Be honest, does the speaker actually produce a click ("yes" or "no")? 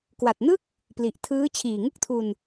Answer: no